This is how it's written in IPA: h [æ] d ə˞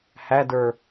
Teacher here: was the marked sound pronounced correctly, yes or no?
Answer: yes